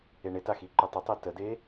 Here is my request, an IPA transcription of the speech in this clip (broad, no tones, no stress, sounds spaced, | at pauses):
e ɳ ɪ t a x i ǃ ʏ tˤ ʏ tˤ e t ə d e